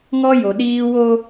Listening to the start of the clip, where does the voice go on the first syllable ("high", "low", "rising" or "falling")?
high